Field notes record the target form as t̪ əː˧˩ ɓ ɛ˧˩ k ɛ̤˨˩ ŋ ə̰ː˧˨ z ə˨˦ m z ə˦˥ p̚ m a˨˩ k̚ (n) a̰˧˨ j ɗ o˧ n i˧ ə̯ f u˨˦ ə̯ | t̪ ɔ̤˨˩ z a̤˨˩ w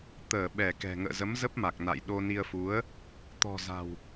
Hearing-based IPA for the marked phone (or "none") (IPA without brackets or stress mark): n